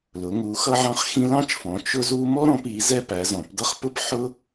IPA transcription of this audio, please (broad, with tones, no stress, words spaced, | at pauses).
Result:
lʊ˩˧ŋu˩˧ xʌ˦ʕɑ̃˦χxĩ˦ lɑ̃˦t͡ʃfɔ̃˩˧ t͡ʃʊ˦zu˦ mɔ˦ɾɔ̃˩˧pi˩˧ zɛ˦pæ˩˧ zɔ̃˩˧pdʌ˦χpʊ˦p ħʊ˦